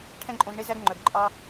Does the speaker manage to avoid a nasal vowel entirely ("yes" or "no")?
no